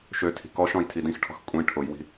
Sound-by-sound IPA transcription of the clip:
ʃ ø tʰ i̤ k ɔ ʃ ɔ̃ j tʰ i d ĩ x ʈʰ ɔ̤ x kʷʼ ĩ ʈʰ ʊ j w i̤

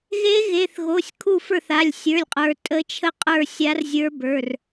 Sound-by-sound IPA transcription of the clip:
ɣ e˧˥ ɣ e˩˧˩ θ ɣ o˩˧˩ sʲ kʰ u˥˩ f ə˞˥˩ θ a˩˧˩ lʲ sʲ ə˞˩˧˩ lʲ qʼ ə˞˩˧ tʼ ə˧˥ t͡ʃʰ ə˥˩ qʼ ə˞˥˩ sʲ a˧˥ r zʲ ə˞˧˥ b ə˞˩˧˩ r

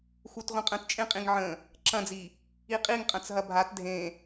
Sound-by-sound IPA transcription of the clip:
x u t ʁʷ ə̃ qʼ ə̃ t t͡ʃʼ ẽ qʼ ĩ ŋ ʕ ə̃ | ǁ ɐ̃ d͡z i | i qʼ i ŋ qʼ ɐ̃ t͡s ɦ ɐ bʱ a t dʱ ẽ

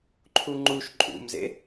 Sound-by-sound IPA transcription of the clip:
ǃʰ u ŋ͡ǃ u ʃ ǃʼ ṵ m z ḛ

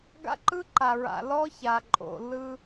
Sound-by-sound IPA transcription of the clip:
ɡ a̰˦ ǃ ɯ˦ ǃ a˨ ɹ a̰˨ l ɔ˦ ç a˨ ǃʼ o̰˨ l ɯ˦

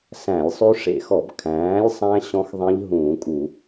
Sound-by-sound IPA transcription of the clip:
s æ̃˧˩˧ lʲ sˤ ʉ˦˥ ʂ ḛ˧˩˧ x ɔ˧˩˧ b kʰ æ̃ː˩˥ lʲ sˤ æ̃˦˥ ɕ ɔ̃˦˥ x ðˤ ẽ˦˥ ʎ ɦ ũː˧˩˧ kʼ u˧˩˧

